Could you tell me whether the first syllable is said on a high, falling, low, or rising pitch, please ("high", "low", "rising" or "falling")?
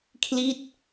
falling